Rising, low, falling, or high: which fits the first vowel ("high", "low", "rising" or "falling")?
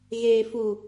low